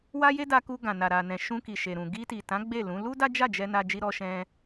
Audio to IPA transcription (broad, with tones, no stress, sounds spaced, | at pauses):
w a˧ j e˦ d a˧ k u˧ ɡ ã˨ n a˨ ɾ a˨ n ɛ̃˨ ʃ ũ˧ k i˨ ʃ e˨ ɾ ũ˨ ɡ i˧ t i˨ t ã˨˦ ɡ͡b e˦˨ l ũ˨˦ l u˦ d a˦ d͡ʒ a˦˨ d͡ʒ ɛ˧ n a˧ d͡ʒ i˧ ɾ ɔ˧ ʃ ɛ̃˧